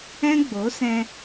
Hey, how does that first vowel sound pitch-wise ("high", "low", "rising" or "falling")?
high